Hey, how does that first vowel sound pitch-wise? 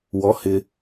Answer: rising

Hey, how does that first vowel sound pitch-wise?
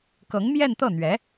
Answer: rising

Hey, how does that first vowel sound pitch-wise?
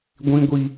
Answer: high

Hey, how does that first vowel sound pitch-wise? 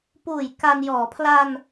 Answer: low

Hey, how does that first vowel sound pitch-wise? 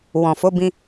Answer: low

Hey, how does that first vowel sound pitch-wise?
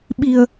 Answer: low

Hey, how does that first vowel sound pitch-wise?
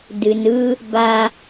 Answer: low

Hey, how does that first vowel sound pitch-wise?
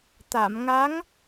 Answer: low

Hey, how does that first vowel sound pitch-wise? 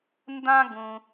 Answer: high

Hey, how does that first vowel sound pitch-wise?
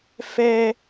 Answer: high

